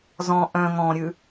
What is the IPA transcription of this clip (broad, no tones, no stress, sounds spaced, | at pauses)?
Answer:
z ɔ̃ ʔ œ̃ ŋ ɔ̃ ɾʲ ʉ